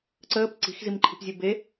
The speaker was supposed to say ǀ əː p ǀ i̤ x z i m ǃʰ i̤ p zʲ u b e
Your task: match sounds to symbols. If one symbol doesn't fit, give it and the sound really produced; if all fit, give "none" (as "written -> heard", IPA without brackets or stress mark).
none